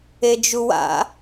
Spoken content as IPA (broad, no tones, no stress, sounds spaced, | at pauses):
e d͡ʒ u w a̰